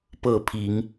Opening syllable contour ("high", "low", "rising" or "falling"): falling